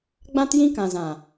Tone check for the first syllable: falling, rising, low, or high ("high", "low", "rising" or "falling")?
high